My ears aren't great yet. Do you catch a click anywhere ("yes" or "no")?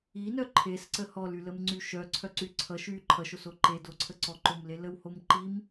yes